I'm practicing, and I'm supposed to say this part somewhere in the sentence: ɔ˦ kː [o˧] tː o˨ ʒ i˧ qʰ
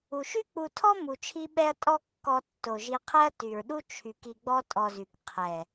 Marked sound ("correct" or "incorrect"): incorrect